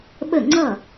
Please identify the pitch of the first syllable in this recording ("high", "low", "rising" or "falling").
falling